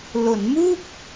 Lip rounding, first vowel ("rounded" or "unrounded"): rounded